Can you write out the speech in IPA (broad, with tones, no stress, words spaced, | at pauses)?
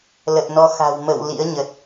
lə˨˩t̚nɔ˨˦xa̤˨˩w mə̰˧˨w lḭ˧˥ə̯ɲə˨˩t̚